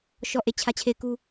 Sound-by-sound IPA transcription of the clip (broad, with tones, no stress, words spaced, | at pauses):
ʃɔ˦˨ʔe˦˨ t͡ɕʰä˦˨t͡ɕʰe˦˨ɪ̯ku˦